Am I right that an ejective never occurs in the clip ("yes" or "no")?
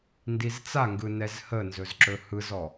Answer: yes